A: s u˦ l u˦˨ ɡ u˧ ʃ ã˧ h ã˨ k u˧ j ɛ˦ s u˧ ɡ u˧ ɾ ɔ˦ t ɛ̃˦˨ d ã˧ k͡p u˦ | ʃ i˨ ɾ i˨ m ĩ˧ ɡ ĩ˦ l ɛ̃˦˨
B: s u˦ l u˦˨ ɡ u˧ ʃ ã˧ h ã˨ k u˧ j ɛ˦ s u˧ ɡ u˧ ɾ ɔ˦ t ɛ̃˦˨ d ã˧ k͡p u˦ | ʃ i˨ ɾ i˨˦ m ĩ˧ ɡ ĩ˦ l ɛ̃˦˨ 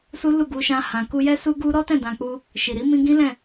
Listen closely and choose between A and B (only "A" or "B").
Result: B